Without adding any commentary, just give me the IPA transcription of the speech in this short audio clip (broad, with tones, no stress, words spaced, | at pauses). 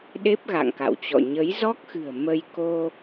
ɗe˦˥p̚ɣa̰˧˨ŋka̰˧˨wt͡ɕɔ̰˧˨ ɲə˨˦jzɔ˦˥k̚xɨ̤˨˩ə̯ mə˧jko˧